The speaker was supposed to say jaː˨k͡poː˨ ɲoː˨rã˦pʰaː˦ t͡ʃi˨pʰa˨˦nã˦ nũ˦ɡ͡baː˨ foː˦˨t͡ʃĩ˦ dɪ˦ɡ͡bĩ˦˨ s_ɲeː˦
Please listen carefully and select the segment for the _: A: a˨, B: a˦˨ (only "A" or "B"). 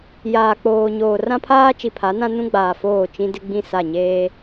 B